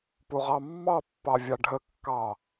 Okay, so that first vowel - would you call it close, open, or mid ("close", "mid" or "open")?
close